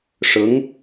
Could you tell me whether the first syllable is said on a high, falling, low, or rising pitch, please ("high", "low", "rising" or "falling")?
rising